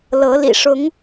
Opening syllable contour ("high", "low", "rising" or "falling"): rising